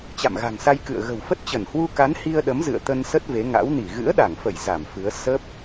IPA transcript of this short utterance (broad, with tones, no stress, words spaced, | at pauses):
t͡ɕa̰˧˨mɣa̤˨˩ŋ sa˧jkɨ̰˧˨ə̯ ɣə̤˨˩wfə˦˥t̚t͡ɕə˧˩n hwu˧ ka˨˦n hi˧ə̯ɗə˨˦m zɨ̰˧˨ə̯t̪ə˧nsə˦˥t̚ ve˨˦ŋa̰˧˥wni˧˩ ɣɨ̰˧˥ə̯ɗa˧˩ŋfə˧˩j za˧˩mfɨ˨˦ə̯ sə˦˥p̚